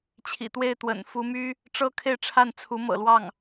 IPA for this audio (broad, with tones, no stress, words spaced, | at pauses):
t͡ɕʰḭ˨˩t̪we˥˩ɪ̯ t̪wə̰˨˩nfu˧˥my˥ | ʈ͡ʂɤ˥˧kʰe˥˧ɪ̯ʈ͡ʂʰa˥˩n t͡sʰu˧˥mɤ̰˨˩lwɑ˥˩ŋ